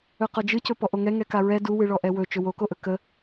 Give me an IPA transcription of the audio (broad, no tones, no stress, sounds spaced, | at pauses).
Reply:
ɵ q ɔ d͡ʒ ɨ c ɵ p ɔ ʔ o ŋ ɛ ŋ ɛ k a ɹ ɛ d u w ɨ ɭ ɔ ʔ ɛ w ɵ t͡ʃ ɵ w o k o ʔ ɵ k ə